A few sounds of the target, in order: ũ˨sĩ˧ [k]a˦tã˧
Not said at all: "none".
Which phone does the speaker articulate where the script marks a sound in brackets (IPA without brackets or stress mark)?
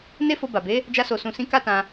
k